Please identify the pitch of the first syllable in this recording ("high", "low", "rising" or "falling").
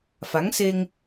rising